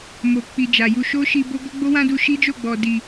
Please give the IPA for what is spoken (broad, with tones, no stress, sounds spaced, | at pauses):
m o˨ k͡p i˨ d͡ʒ a˨ j u˧ ʃ o˦ ʃ i˧ b o˦ ɡ ɔ˦ ɡ͡b o˦ w ã˦ d u˧ ʃ i˦ d͡ʒ o˦˨ ɡ͡b ɔ˨ d i˨